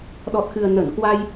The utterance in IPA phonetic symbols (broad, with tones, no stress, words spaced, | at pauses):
ɗɔ˨˩t̚xɨ˨˩ə̯ nə˧˩nkwa˧j